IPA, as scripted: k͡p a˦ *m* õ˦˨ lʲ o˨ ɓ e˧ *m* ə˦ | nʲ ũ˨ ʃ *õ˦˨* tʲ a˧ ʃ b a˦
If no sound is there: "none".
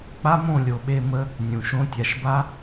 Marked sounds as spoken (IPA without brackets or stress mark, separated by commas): m, m, õ˦